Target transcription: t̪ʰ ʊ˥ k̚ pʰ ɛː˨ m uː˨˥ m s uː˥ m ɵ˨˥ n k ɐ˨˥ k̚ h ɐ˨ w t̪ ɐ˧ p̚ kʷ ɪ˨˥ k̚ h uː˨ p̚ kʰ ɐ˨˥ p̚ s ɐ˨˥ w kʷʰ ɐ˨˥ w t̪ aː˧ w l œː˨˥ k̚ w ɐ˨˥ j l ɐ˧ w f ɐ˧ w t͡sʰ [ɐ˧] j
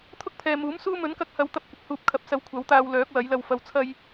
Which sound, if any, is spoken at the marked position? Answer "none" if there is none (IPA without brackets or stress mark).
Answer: ɐ˧